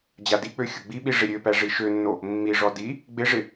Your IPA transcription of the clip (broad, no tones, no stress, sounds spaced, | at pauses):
d͡ʑ a d i k͡p ø xʲ ʊ ɡ͡b i ɓ i ʐ ɪ ɾʲ ø p æ ʐ i ʃ ø nː o | mː i ʐ ɔ d i | ɡ͡b ɪ ʐ ɪ